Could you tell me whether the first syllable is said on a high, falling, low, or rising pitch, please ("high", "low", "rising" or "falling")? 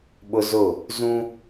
high